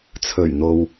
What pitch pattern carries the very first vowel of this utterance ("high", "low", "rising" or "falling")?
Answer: low